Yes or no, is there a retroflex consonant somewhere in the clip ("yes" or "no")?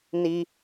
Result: no